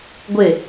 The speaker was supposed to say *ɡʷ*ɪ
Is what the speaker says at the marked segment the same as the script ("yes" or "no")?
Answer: yes